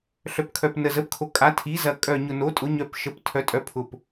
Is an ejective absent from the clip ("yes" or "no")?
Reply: no